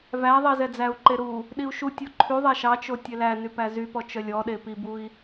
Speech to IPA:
v æ ðˤ i z ɛ d͡z æ u̯ ǃ e ɾ u | ɗ i u̯ ʃ u tʲ o ǃʰ y ðˤ ɛ ʃ ɑ t͡ʃ o tʲ e l æ n y p æ z y p ɔ t͡ʃ œ lʲ ɔ ɗ e p i b u i̯

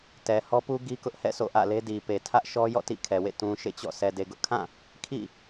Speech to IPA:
t ɛ˨ h ɔ˦ p u˦ ɡ i˦ k ʊ˦ ʔ h ɛ̰˦˨ s o̰˦˨ ʔ ä̰˦˨ l e˦ d i˨ p e˨ tʰ ä˦ ʔ ʃ ɔ˦ j ɔ̰˦˨ t ḭ˦˨ kʰ ɛ˨ w ḛ˦˨ t ũ˨ ʃ ḛ˦˨ t͡ɕ ɔ̰˦˨ s ɛ˨ d e˨ ɡ ʊ˦ ʔ kʰ ã˦˨ | kʰ ḭ˦˨

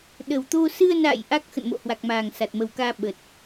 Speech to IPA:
ɗ ə˨˩ w t̪ o˧ s ɨ˧ ə̯ n a̰ː˧˨ j ʔ a˦˥ k̚ x ə̰˧˨ n m o̰˧˨ h w a˨˩ k̚ m aː˨˩ ŋ s a˨˩ t̚ m ə˨˩ w k aː˧ ɓ ə˨˩ t̚

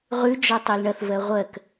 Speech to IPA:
ʁ ʉ d͡ʒ ɔ tˤ ɜ l ɳ ɐ θ v ɜ ʁʷ ɜ k

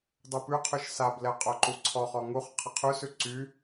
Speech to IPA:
dˤ u p ʉ qʰ ʉ ʃ s a b l ɛ qʼ o ǃ u ǀʰ ɔ χ ɔ ŋ u χ qʰ ə qʰ ʉ s ʉ ǀ y

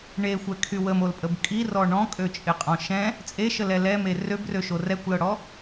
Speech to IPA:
ɳ e xʷ ɛ kʰ y w ə m o l pʼ ə b kʼ i r ɔ ɳ ɔ̃ kʼ ø t͡ʃʼ ɪ qʼ ɔ̃ ʃ ɛ̃ | t͡sʼ e ʃ ə l ɛ l ɛ m e r ø b r ø ʃ o r ɛ kʷ l ɤ ɽ ɔ

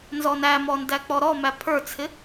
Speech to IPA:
n z ɔ n æ m ɔ n d æ k͡p ɔ ɾ ɔ m æ pʰ ə˞ t͡sʰ ɪ

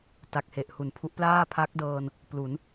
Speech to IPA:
t a˨˩ k̚ h e˨˩ ʔ h u˩˦ n pʰ u˦˥ ʔ p l aː˥˩ pʰ a˦˥ k̚ d ɤː˧ n | p l u˩˦ n

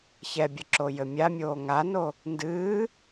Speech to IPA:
ç ɛ bʲ ɘ ǁ o j ɘ mʲ a mʲ oː ŋ a n o | n d ɨː

